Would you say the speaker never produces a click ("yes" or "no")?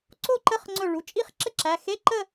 no